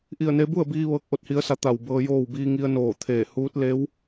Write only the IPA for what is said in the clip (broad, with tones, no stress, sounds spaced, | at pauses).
ʔ i˧˩ ə̯ n e˧ b u˥˨ ə̯ b iː˧ ʋ ɤː˧˥ k̚ ʔ o˧ t̚ h i˧˥ ə̯ s a˧˥ t̪ a˧˩ w b ɤː˧ j oː˥˨ w b iː˧ ŋ i˧ ə̯ n oː˧˩ t̪ʰ eː˧˩ h uː˧˥ t̚ l e˧˥ w